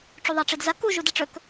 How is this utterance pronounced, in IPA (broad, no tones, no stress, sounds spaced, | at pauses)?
ʈ͡ʂ u ðˤ a ʈ͡ʂ i d z ɐ k u ʒ u d ɐ ʈ͡ʂ ɵ k